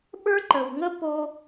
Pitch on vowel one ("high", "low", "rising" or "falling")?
high